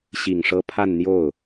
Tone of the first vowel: low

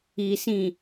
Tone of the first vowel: low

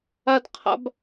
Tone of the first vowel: high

